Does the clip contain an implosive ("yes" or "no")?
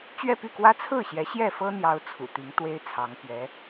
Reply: no